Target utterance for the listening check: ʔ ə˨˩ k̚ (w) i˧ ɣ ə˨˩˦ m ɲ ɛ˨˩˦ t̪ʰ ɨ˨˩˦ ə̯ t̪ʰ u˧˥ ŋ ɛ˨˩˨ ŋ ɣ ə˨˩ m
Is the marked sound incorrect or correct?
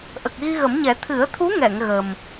incorrect: ɣ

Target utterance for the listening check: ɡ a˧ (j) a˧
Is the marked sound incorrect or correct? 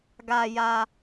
correct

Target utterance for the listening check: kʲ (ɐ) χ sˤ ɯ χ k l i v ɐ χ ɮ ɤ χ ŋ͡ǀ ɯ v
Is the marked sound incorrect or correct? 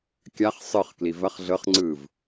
incorrect: a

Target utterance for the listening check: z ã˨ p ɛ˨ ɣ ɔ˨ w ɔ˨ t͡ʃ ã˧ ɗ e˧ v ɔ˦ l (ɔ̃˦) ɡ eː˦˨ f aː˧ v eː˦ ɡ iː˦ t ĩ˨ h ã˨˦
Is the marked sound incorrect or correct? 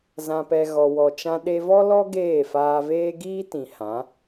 incorrect: ɔ˦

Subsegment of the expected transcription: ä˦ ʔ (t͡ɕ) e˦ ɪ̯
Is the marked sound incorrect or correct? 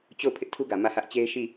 correct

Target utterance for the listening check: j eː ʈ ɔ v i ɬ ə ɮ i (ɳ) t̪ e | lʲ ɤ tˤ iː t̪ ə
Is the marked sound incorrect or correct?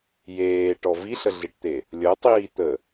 incorrect: ʈ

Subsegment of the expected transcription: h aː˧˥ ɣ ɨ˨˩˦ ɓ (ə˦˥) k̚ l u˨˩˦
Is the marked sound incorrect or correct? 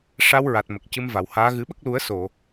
correct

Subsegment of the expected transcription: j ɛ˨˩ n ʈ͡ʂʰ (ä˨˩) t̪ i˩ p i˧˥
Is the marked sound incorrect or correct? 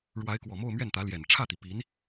incorrect: ä˥˩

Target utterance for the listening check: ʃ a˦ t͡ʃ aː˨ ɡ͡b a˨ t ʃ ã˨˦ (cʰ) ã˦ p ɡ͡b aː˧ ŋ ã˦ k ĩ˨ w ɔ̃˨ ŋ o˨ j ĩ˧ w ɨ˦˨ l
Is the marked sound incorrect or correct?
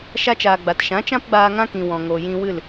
incorrect: t͡ʃ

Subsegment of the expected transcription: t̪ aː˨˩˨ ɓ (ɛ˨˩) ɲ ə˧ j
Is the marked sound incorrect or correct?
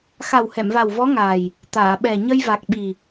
correct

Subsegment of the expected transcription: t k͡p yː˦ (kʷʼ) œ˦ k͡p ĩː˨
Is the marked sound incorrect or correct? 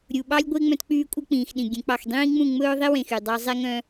correct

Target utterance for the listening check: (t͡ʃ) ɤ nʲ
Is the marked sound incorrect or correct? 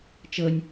correct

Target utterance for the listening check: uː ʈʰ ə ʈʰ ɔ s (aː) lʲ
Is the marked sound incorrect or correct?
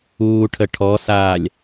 correct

